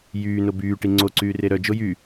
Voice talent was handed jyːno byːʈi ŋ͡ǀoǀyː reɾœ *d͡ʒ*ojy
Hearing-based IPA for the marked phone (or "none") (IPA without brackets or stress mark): d͡ʒ